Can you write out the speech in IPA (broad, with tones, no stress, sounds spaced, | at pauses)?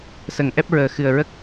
s ə˨˩˦ ŋ ʔ ɛ˦˥ p̚ ɹ əː˨˩ x ɨ˨˩ ə̯ ɹ ə˦˥ k̚